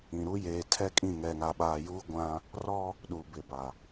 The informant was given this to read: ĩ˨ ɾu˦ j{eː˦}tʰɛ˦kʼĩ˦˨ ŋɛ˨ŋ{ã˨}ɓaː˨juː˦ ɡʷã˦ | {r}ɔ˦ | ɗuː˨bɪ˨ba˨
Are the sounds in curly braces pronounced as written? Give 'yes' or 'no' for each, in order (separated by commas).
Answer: no, no, yes